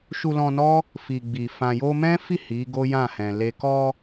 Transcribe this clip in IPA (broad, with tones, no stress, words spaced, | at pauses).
ʃu˧lɔ̃˧nɔ˦ | fi˨ɡ͡bi˨ fã˨jo˧mɛ̃˦fi˦˨ hi˨˦ɡo˦jã˦˨hɛ̃˨ le˨kɔ˧